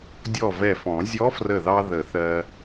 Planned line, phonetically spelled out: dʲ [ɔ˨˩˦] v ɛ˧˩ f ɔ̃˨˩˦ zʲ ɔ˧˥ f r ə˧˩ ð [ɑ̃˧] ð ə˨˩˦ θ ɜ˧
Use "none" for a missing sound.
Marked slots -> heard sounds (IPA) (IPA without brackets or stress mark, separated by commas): ɔ˧˩, ɑ˧